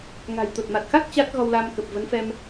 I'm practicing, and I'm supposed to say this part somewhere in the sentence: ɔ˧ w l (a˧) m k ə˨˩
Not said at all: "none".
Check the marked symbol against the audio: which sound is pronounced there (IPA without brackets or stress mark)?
a˧